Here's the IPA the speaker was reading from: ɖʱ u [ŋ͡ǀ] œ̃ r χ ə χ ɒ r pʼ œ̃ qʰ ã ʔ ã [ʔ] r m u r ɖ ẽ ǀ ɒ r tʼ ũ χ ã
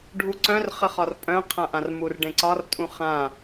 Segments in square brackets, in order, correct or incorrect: incorrect, incorrect

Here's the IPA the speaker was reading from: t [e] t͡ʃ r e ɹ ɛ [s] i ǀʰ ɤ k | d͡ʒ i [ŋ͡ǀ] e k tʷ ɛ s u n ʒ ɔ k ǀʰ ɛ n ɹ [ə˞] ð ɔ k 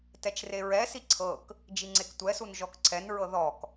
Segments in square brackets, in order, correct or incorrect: incorrect, correct, correct, incorrect

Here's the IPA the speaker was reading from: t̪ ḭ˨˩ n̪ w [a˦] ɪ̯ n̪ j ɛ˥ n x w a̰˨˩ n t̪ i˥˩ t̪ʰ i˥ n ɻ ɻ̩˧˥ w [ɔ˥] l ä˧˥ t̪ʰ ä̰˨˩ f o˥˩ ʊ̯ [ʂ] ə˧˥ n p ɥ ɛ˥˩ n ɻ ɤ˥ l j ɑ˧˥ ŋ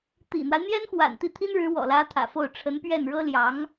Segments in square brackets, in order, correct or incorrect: correct, incorrect, incorrect

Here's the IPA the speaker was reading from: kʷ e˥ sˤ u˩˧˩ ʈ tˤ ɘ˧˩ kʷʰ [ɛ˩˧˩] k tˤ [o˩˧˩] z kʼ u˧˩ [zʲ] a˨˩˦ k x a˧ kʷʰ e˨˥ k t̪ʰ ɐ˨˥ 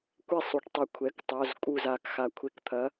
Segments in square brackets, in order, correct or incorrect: correct, correct, incorrect

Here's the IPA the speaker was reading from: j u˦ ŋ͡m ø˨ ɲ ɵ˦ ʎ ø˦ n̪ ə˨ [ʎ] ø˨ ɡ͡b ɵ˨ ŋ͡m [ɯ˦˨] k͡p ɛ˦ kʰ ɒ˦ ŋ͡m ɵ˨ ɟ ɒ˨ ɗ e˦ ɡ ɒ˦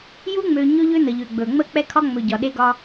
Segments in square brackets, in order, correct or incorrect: correct, incorrect

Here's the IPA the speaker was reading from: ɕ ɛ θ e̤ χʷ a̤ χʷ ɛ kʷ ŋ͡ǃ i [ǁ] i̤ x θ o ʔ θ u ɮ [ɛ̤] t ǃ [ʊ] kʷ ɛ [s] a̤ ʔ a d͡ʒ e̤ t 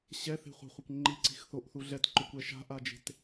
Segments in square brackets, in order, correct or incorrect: incorrect, incorrect, correct, incorrect

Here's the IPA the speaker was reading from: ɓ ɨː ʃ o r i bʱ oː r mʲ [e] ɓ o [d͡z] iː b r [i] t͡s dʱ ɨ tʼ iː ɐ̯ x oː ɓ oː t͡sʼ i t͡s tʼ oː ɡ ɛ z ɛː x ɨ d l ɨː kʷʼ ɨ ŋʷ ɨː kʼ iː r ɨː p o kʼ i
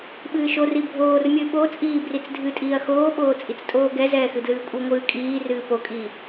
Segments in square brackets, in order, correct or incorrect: incorrect, incorrect, correct

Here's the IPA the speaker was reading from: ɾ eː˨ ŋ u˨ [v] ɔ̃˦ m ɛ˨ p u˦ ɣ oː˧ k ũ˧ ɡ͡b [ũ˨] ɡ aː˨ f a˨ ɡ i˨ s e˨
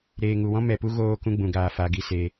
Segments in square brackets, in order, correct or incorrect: incorrect, correct

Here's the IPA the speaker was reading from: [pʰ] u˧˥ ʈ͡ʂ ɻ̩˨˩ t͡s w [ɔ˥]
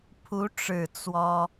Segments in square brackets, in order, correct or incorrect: correct, correct

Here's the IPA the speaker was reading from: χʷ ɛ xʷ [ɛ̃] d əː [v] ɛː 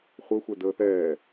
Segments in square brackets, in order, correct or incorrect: incorrect, incorrect

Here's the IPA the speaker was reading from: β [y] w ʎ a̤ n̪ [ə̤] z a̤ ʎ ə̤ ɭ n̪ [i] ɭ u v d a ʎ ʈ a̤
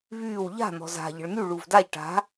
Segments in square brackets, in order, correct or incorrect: incorrect, incorrect, incorrect

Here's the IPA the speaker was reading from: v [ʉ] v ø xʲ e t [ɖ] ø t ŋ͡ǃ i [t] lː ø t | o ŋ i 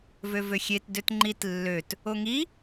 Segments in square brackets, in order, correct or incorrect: incorrect, incorrect, correct

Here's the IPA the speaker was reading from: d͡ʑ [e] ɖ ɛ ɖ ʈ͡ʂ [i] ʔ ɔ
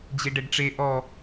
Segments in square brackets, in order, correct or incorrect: correct, incorrect

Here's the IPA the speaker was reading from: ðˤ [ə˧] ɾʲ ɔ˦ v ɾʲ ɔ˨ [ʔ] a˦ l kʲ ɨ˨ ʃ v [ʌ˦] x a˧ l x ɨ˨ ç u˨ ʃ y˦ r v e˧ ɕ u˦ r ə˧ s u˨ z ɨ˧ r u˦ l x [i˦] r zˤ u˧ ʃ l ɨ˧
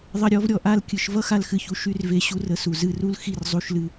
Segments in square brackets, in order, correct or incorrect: correct, correct, correct, correct

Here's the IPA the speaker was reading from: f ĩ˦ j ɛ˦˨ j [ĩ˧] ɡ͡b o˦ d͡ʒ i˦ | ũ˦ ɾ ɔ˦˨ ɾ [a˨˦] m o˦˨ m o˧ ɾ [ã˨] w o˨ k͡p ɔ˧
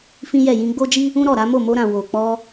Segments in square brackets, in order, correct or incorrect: correct, correct, correct

